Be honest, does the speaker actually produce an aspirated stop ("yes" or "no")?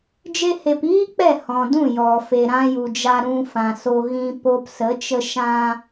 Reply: no